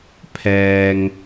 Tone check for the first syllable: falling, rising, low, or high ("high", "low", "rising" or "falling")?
low